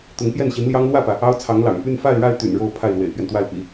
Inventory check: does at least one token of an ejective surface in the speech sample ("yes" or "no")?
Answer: no